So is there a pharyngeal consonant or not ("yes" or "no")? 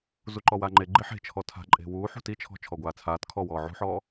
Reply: yes